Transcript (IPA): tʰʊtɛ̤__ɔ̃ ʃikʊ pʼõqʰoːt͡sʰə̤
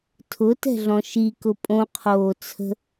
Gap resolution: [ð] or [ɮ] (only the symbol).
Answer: ɮ